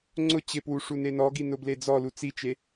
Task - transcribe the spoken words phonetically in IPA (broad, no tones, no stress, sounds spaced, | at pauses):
ŋ͡ǀ ʊ t͡ɕ ɪ p w u ʂ u n e n ɔ ɡ i n ʊ b l e d͡z ɔ l u t͡s i t͡ʃ e